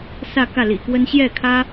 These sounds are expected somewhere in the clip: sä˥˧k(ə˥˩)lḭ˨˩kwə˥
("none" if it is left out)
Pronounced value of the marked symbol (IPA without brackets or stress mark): ä˥˩